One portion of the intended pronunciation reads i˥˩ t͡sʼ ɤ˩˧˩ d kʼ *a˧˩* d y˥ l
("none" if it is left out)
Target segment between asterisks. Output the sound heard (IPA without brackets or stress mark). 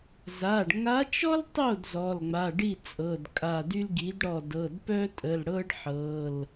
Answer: a˧˩